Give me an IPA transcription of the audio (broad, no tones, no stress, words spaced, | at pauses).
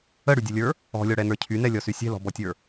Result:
əɽydʲəlʲə˞ | ɔ̤lʲɔɽɛnə˞ cʰynɛlʲɔsy sʲɛ̤lɔ̤bɔtʲə˞